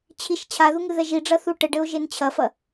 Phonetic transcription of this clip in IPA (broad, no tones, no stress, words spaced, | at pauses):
t͡ɕʰiʃ t͡ɕʰaðu ŋɨðɛʒiɖ͡ʐɐ θuʈɘɖɘo̯ ʒent͡ɕʰɐfɐ